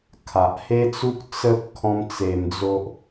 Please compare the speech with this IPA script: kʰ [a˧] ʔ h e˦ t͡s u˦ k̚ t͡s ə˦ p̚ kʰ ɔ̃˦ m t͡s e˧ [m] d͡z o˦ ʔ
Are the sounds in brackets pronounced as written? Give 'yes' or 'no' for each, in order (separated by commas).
no, yes